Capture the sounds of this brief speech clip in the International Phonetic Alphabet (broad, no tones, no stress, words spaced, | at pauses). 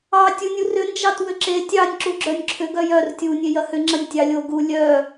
ɑ tʲunʲurʏ nd͡ʒɑtwʏǁe tʲɑnʲ ǁuɡ͡ǁœnʲǁʰʏɡ œjœr tʲu nʲejɐhʏ ŋ͡ǁɐnʲtʲɑlʲo ɡu lʲœ